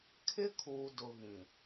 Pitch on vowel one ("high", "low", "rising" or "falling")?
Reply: high